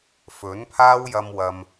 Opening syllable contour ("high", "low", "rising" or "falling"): rising